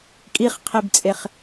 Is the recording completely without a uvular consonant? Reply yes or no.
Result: no